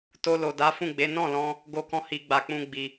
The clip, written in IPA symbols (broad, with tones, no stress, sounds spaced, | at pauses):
t o˧ l o˨ d a˨˦ f ũ˦˨ ɡ͡b e˨˦ n ɔ̃˦˨ l ɔ̃˧ | ɡ o˧ k ɔ̃˧ h i˧ ɡ͡b a˧ k͡p ũ˦ ɡ͡b i˧